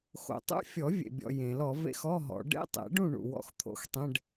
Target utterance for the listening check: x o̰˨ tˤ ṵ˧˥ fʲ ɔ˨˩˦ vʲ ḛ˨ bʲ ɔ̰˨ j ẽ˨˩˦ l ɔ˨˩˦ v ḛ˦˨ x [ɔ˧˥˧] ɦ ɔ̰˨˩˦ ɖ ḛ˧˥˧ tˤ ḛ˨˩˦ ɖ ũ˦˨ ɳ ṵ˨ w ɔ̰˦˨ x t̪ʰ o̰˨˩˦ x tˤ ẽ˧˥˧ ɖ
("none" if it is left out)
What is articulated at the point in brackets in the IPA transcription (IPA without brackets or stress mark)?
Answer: ɔ˧˥˧